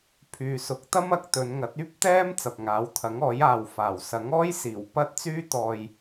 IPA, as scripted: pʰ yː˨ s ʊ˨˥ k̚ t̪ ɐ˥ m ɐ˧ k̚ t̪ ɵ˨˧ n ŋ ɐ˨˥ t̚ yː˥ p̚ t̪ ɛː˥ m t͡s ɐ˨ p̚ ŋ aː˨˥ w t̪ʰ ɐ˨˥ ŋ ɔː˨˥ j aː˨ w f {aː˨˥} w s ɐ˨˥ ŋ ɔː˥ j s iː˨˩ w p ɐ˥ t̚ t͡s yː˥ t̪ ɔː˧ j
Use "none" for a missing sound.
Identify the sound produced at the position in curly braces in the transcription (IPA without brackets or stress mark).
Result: aː˨˩